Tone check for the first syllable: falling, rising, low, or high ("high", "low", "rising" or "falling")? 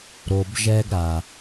low